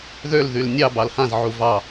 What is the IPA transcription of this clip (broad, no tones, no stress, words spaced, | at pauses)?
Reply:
ðøl ðylnʲɑ bɑlhãz ʕuvɑ